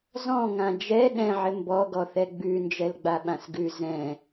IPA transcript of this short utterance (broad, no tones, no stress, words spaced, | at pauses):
zɔ̃ŋã d͡ʒɛ ɗɛ̃ʕɪ mbɔɡɔθɛ ɡ͡bʉ nd͡ʒɛlɡ͡baɓãsɡʉ zɛ̃